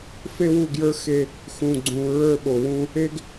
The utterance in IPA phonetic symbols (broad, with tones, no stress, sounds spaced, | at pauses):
f e˦ w u˦˨ ɡ j ə˞˦ x e˦ | x ũ˨ ɡ͡ǀ ũ˨ ɹ ə˞˦˨ ɓ o˨ w ũ˦ | e˦ ɡ